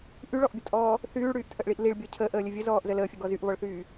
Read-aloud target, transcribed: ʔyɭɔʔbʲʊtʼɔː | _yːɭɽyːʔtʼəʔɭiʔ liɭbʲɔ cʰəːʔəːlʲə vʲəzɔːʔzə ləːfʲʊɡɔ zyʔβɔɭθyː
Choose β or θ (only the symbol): θ